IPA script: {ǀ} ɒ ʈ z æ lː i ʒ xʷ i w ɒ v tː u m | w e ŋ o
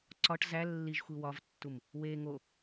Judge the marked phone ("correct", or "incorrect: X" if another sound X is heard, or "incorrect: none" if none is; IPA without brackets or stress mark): correct